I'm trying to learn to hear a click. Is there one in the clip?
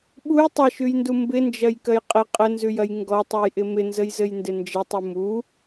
no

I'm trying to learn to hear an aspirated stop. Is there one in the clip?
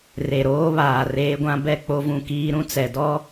no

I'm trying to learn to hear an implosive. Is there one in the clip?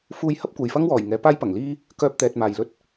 no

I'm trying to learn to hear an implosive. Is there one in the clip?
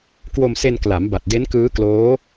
no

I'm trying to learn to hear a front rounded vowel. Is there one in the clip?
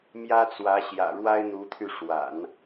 yes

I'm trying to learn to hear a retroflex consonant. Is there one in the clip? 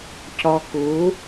no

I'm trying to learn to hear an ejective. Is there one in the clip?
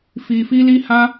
no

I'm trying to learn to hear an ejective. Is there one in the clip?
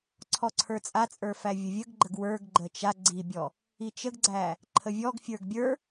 yes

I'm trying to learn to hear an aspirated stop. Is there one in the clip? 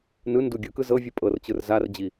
no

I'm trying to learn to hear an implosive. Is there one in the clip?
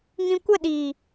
yes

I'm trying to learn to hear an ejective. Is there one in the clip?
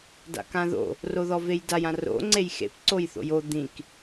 no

